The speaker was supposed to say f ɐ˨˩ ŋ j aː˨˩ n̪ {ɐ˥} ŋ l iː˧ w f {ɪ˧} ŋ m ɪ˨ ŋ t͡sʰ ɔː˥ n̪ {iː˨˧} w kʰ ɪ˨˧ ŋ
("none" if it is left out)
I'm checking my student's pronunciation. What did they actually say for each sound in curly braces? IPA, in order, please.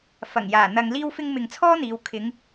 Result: ɐ˨, ɪ˧, iː˨˧

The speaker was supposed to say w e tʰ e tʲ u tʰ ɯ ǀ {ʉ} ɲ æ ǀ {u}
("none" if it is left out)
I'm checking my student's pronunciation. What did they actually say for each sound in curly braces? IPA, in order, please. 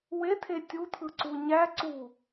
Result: u, u

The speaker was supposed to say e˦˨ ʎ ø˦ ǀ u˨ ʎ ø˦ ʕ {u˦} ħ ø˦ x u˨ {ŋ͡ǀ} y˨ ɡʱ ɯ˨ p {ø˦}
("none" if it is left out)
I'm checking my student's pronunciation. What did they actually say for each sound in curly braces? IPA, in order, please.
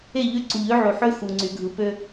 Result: u˨, ŋ͡ǀ, ø˦

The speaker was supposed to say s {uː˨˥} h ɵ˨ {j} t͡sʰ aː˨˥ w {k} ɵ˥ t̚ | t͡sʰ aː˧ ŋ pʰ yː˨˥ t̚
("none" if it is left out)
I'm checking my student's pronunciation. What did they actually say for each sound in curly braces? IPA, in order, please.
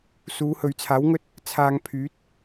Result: uː˨˧, ɥ, ŋ

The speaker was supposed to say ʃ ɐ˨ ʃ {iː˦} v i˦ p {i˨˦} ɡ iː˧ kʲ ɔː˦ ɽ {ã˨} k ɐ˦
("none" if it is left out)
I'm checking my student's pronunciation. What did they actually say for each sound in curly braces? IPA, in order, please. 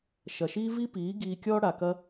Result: iː˦, iː˨˦, a˨

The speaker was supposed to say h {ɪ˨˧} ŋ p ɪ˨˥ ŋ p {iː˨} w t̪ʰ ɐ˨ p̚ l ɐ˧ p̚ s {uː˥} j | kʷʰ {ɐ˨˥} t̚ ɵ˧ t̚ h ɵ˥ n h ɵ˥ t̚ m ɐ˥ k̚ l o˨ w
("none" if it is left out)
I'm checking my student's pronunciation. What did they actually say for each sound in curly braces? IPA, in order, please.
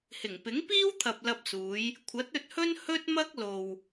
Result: ɪ˨˩, iː˥, uː˨˧, ɐ˨˥

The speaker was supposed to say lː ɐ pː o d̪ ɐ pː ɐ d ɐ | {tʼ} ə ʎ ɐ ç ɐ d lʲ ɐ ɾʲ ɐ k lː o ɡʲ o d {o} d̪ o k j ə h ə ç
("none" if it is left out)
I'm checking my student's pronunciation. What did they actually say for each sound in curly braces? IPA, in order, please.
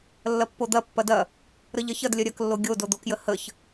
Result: ɾ, o

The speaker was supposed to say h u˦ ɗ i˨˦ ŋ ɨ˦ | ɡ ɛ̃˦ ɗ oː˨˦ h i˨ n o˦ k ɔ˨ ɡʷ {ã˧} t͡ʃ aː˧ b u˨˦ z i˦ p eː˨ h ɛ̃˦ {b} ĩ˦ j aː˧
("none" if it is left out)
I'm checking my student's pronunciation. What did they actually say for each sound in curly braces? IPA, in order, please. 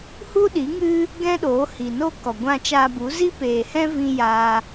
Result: ã˧, v

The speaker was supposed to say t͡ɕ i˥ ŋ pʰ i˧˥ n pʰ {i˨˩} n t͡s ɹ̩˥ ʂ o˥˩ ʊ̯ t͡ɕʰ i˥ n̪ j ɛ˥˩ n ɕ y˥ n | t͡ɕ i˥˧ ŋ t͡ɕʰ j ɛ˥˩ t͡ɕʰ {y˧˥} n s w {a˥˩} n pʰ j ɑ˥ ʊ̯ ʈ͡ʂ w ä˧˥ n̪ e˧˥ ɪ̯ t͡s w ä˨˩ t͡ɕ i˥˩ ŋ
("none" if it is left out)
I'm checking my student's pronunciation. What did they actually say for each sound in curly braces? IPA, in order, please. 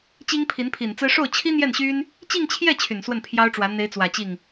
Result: i˨˩, y˨˩, ə˥˩

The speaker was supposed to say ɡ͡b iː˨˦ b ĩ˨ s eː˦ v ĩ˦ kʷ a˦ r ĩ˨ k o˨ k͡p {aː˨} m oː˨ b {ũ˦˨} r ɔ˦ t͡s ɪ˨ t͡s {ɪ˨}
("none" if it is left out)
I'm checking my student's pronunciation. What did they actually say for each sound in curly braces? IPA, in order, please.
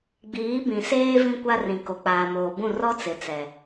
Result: aː˨, ũ˦˨, ɛ˨

